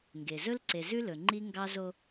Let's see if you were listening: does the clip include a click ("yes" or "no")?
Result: yes